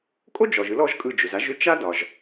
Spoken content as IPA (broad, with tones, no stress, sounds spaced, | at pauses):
kʼ o˥ d͡ʒ ɔ˩ ʒ ɯ˩˥ l ɔ˩˥ ʒ kʼ ɯ˧˩ d͡ʒ ʏ˩ z a˩˥ ʒ ʏ˥ t͡ʃ a˥ d ɒ˩ ʒ